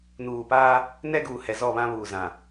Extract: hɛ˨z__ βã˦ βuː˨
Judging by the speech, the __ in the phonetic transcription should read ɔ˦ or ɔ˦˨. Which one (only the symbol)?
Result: ɔ˦˨